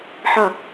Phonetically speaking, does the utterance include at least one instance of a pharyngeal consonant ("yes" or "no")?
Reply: yes